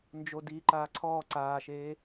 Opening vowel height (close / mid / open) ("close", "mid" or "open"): mid